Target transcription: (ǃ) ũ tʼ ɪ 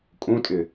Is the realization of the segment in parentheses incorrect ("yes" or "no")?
yes